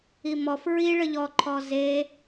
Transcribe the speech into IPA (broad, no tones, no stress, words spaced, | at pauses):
imɔf ɹiɭə ʎɔǃʰɔ ze